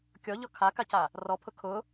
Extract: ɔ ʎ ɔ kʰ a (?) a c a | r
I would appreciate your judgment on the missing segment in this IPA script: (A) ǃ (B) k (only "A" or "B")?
B